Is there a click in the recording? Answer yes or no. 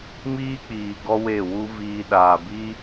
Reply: no